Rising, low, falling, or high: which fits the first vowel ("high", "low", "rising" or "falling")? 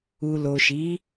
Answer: low